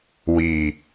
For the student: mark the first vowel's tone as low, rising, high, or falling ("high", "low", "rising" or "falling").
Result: low